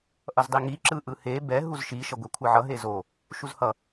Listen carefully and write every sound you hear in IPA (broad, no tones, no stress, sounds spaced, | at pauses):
ʔ ʌ z dˤ i ŋ i ǁ ɯ ʔ ɯ h e b ɛ ɦ u z ʃ i ʃ ʌ ɡʷ ɛ kʷʰ ɯ ʕ ʌ ɦ e z o | ʃ u z h ʌ